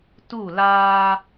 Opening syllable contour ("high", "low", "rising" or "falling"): falling